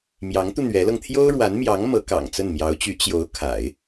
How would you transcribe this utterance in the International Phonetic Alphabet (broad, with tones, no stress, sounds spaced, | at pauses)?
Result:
m j ɑ˧˥ ŋ t̪ u˧ n̪ ɥ ɛ˧˥ l ɤ˧ ŋ t̪ʰ j o˥ ʊ̯ ɻ w a˧˥ n m j ɑ˧˥ ŋ m ɤ˧˥ k ɑ̰˨˩ ŋ t͡s ə˥˩ n m j ɑ˧˥ ʊ̯ t͡ɕ y˧˥ t͡ɕ j o˧˥ ʊ̯ kʰ a̰˨˩˦ ɪ̯